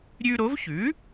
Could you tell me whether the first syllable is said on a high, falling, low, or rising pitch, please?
high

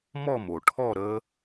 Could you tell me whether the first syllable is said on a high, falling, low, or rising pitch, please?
falling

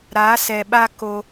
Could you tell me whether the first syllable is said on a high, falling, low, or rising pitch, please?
rising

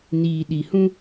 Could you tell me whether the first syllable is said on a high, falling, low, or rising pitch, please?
low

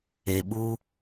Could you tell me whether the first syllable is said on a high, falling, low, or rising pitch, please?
low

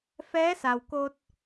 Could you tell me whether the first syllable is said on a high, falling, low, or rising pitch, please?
rising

